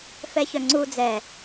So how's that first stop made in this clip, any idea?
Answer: click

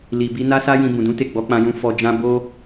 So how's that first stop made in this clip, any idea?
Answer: plain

